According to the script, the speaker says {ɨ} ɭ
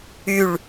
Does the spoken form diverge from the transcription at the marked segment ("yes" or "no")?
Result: yes